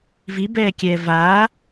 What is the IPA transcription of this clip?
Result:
v i b ɛː kʲ ɛː v aː

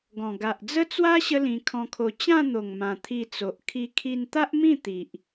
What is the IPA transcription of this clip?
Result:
ɡ ɔ̃˨˩ ɡ a˨ ʔ d͡z ə˦ t͡s w a˦ ɕ ə˦ l ĩ˧ kʰ ɔ̃˧ kʰ o˧ t͡ɕ ã˥˧ n̪ o˨˩ ŋ m ã˨˩ t̪ʰ i˧ t͡s o˨ ʔ kʰ i˧ kʰ i˧ n t̪ a˦ ʔ m ĩ˥˧ t̪ i˨ ʔ

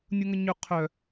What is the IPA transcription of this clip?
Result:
nʲ u ŋ ə ɲ ø qʰ œ

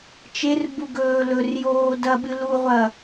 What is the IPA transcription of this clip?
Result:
t͡ʃ e r b u ɡ ɵː l ɵ r j oː d ɐ ɓ ɨ l u ʁʷ ɐ

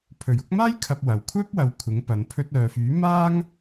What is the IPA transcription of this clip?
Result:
pʰ ɵ˨˩ ɥ ʊ˨˥ k̚ m aː˥ j kʰ ɐ˧ p̚ w ɐ˨ w kʷʰ œː˥ p̚ w ɐ˨˧ w kʷʰ ɪ˨˥ ŋ p ɐ˨˧ n pʰ ɵ˧ t̚ œː˨ f yː˨˥ m aː˥ ŋ

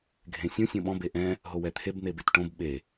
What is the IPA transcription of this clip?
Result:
ɡʱ ẽ sʲ õ sʲ õ ɓ ɔ̃ b e ʔ ɛ̃ | ɦ o w ɛ t̪ʰ e b n̪ e b e t ʈ õ b ɓ e

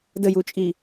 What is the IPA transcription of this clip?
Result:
d ə j u t͡ʃʼ i

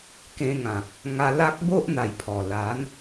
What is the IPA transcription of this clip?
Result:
k ẽ˧ ŋ ã˨ k̚ | ŋ a˧ l a˦ k̚ b o˦ ʔ n̪ a˨˩ j pʰ ɔ˨˩ l a˨˦ n

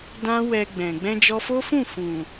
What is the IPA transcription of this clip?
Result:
d ã˦ w ɛ˧ ɡ͡b ɛ̃˨ ɡ͡b ɛ̃˧ d͡ʒ ɔ˧ f o˦ f ũ˦˨ f ũ˨

